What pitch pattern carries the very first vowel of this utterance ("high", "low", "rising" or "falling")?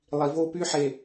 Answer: low